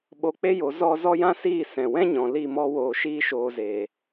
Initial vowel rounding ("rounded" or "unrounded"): rounded